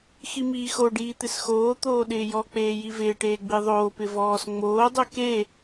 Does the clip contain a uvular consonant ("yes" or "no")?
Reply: no